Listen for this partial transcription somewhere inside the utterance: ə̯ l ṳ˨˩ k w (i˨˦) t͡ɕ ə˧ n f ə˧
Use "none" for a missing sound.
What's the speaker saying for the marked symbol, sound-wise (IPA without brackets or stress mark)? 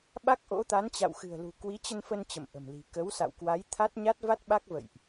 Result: i˨˦